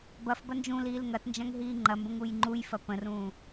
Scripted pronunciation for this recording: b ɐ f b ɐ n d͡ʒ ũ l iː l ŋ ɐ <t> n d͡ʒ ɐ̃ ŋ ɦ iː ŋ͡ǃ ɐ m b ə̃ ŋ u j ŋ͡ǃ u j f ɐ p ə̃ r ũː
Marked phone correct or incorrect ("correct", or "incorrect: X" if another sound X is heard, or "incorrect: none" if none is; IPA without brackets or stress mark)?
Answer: correct